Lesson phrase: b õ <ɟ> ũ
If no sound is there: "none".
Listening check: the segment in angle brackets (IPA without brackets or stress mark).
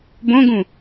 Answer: ɡ